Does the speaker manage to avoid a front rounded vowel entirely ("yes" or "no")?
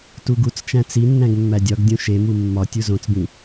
yes